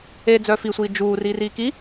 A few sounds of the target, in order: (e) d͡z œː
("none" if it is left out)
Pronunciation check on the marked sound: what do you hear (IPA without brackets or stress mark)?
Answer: e